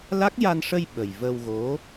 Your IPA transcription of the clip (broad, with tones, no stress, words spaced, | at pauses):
la˦˥k̚ ja˧nʂə˧j ɓə˨˩j və˧wɣo˧˥